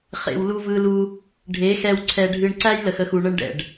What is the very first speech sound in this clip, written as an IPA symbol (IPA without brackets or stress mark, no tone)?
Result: χ